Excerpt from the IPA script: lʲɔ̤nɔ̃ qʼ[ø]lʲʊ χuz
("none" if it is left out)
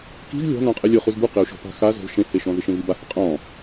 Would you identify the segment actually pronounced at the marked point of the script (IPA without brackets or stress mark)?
e